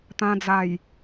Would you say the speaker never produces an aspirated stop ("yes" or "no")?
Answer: yes